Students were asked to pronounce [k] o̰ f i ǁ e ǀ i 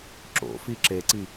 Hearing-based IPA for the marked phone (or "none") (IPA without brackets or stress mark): ǁ